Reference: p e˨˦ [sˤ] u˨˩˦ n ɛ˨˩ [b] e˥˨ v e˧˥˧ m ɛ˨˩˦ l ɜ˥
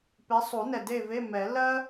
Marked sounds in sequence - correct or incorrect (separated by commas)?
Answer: correct, incorrect